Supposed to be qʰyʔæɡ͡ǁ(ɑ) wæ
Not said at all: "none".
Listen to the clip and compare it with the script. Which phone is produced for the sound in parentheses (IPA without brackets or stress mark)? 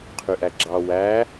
ɑ